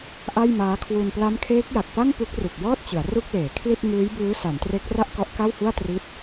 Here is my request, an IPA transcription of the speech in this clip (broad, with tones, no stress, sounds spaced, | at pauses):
ʔ a˥˩ j m aː˦˥ kʰ w u˧ n p l a˦˥ m kʰ eː˦˥ k̚ j a˨˩ k̚ p a˥˩ ŋ p u˦˥ k̚ r u˨˩ k̚ j ɔː˥˩ t̚ t͡ɕ ɯ˩˦ a̯ r u˥˩ k̚ l eː˩˦ kʰ l i˥˩ t̚ ŋ ɯː˦˥ j b ɯː˦˥ s a˩˦ n t r e˦˥ k̚ r a˥˩ ʔ k ɔ˦˥ ʔ k a˥˩ w h u˥˩ a̯ t r i˦˥ t̚